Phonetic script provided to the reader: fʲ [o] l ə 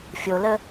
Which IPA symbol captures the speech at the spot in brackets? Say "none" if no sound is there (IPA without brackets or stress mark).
o